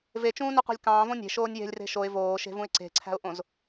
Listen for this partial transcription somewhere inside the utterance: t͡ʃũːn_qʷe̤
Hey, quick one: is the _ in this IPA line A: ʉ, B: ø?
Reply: B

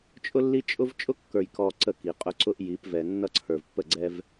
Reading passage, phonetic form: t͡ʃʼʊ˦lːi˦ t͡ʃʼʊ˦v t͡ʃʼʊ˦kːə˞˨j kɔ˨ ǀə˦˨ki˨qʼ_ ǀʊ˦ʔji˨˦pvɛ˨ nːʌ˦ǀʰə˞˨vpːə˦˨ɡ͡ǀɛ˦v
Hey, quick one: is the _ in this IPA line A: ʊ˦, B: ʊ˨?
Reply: A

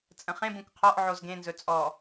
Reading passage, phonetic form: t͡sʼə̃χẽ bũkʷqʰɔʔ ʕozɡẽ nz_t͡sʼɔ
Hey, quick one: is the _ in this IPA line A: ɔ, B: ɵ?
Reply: B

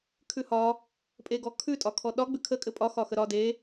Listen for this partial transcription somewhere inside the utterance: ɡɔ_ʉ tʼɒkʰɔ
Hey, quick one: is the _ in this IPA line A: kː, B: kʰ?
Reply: B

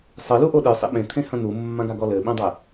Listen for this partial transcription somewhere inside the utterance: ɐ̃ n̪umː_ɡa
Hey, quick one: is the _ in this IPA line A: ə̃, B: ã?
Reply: B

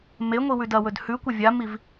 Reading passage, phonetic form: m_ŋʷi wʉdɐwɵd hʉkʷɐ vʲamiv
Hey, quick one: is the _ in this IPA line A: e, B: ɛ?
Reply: A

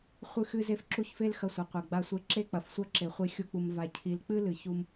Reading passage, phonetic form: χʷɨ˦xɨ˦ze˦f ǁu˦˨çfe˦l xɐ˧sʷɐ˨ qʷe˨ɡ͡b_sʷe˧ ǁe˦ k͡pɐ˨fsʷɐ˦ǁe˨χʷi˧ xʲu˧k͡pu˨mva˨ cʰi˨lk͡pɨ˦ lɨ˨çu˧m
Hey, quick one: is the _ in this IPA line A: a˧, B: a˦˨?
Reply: A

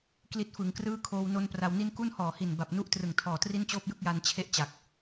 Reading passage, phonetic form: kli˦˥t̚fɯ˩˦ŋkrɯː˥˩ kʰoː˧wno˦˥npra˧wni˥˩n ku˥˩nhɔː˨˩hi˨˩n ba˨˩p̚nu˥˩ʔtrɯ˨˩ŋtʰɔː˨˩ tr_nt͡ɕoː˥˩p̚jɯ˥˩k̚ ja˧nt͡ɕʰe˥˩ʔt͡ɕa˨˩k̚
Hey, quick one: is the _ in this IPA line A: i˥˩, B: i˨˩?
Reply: A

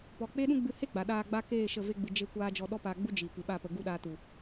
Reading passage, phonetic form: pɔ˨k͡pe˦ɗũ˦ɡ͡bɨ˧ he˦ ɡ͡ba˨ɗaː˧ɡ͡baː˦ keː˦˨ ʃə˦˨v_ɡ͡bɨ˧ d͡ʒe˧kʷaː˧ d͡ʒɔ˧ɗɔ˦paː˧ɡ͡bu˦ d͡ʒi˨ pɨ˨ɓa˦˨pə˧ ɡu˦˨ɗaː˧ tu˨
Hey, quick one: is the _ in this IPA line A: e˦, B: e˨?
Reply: A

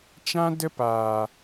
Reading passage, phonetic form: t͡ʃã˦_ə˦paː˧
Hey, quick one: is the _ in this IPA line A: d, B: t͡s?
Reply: A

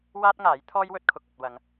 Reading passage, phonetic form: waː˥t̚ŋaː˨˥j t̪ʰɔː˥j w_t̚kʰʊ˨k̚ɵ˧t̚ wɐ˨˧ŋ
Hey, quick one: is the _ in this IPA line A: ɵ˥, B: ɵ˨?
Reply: A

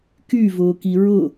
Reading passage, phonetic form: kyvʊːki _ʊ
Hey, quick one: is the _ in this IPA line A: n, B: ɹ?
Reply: B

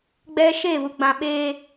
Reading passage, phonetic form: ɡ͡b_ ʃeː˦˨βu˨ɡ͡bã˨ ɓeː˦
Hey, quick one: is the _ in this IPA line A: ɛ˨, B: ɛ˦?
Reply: B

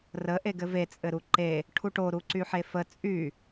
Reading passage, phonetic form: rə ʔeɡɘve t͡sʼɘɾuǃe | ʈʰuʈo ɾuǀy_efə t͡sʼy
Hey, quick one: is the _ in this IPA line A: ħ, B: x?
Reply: A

